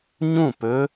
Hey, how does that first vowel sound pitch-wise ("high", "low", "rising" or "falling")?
falling